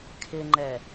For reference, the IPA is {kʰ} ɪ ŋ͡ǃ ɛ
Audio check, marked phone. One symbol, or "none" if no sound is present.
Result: kʰ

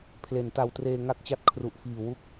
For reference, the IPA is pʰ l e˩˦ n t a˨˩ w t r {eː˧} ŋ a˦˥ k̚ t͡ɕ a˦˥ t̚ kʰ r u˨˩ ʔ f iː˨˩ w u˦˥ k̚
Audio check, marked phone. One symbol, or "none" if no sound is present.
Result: eː˧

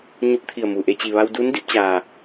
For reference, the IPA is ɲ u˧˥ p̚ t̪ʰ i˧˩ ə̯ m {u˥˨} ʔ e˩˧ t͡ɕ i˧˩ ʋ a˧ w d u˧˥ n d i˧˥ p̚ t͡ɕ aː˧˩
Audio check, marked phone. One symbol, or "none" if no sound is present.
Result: u˩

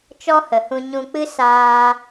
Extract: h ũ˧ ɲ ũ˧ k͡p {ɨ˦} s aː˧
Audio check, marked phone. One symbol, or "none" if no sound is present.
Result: ɨ˦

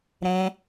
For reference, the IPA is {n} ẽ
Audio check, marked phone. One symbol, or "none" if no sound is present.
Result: ɾ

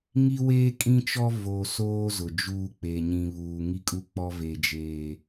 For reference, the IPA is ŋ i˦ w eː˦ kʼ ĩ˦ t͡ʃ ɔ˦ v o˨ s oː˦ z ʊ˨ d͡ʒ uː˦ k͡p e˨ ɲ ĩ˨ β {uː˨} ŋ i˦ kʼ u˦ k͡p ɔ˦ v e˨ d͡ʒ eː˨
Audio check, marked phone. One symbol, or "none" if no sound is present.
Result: uː˨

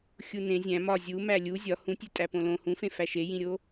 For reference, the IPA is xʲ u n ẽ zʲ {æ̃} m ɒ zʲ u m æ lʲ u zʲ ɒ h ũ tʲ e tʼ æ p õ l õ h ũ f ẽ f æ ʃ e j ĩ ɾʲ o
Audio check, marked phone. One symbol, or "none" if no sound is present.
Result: æ̃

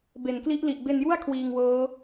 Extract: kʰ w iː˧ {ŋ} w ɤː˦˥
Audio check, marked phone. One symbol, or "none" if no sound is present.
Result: ŋ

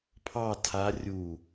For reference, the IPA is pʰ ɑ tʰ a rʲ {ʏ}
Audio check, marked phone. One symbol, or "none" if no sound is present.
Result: u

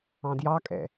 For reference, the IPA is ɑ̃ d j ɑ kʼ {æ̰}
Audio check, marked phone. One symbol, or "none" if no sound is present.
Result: ɛ̰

